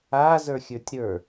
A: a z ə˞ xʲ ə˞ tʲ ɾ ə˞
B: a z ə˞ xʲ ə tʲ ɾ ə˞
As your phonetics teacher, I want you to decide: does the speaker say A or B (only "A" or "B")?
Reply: A